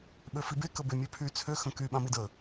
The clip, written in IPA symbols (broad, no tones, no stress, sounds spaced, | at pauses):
ɓ ø f i b e k ə b e mʲ ø pʰ y t͡sʰ ø x ə̃ k y ɓ ã m i d ə